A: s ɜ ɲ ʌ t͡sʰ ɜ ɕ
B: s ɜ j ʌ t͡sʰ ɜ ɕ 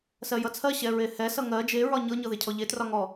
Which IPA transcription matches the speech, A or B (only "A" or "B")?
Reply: B